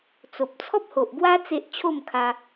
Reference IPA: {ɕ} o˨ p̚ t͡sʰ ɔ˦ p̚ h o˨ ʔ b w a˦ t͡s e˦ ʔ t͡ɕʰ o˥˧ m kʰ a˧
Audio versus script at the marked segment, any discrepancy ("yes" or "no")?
yes